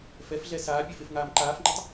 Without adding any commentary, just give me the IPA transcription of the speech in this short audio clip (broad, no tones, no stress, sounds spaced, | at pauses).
f ɛ f ɮ ɛ s aː pʲ e f e f ŋ aː m ǃ aː f ŋ͡ǃ e tˤ